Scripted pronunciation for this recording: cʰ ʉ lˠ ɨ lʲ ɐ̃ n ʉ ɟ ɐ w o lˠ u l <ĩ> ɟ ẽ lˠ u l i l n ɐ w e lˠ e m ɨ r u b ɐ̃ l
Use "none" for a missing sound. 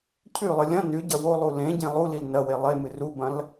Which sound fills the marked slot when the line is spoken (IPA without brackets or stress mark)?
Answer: ẽ